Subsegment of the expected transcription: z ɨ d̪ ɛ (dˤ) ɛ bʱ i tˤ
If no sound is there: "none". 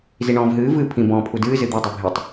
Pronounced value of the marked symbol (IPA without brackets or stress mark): dˤ